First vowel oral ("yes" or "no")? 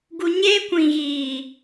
yes